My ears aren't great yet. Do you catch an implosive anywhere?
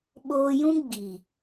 yes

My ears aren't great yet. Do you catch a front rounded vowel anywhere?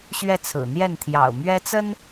no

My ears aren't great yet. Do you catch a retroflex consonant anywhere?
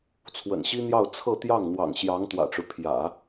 yes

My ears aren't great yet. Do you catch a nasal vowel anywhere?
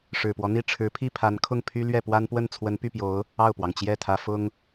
no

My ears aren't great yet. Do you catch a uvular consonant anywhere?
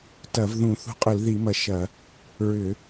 yes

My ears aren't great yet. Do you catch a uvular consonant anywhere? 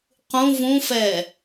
yes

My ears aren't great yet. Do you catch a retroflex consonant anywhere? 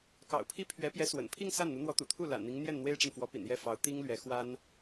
yes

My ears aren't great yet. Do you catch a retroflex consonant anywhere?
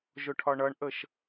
yes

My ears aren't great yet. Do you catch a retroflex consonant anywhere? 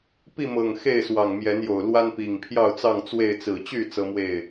no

